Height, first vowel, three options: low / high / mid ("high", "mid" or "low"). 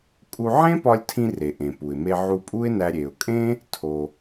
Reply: high